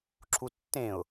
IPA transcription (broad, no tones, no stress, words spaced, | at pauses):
ǁʰutːẽʊ̯